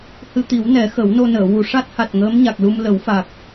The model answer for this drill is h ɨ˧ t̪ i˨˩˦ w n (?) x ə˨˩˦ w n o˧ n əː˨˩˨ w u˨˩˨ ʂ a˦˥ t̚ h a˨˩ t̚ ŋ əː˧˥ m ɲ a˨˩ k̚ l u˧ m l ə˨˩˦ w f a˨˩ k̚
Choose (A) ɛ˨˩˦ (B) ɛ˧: A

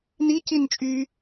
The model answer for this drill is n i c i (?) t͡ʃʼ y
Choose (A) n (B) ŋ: A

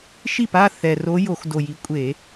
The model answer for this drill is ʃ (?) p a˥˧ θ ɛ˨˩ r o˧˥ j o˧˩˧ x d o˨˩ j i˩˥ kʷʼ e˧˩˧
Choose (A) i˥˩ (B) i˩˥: A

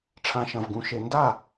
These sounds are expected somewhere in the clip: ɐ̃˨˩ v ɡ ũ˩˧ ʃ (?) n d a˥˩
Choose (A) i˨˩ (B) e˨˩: B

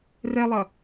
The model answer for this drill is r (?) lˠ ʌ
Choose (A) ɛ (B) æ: A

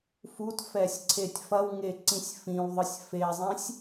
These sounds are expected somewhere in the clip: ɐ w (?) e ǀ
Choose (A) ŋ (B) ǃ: A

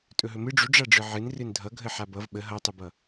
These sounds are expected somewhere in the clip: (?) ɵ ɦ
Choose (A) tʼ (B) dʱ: A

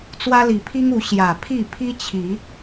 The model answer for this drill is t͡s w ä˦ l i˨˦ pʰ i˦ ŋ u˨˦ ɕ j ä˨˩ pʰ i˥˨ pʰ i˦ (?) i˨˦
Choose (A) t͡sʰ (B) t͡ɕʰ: B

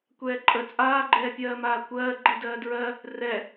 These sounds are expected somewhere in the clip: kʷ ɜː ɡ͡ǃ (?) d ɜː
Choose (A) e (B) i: B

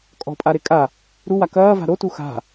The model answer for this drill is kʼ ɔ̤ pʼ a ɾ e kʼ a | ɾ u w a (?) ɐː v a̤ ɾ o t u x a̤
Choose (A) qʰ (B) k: B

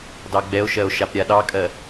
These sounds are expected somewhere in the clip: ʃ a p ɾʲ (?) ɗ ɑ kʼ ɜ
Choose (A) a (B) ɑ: A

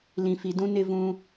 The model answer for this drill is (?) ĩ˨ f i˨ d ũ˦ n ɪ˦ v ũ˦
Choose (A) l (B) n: A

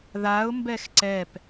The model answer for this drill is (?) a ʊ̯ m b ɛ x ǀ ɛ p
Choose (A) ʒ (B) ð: B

